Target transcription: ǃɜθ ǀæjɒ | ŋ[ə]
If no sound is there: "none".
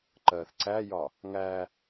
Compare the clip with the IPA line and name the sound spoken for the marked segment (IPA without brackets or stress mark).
æ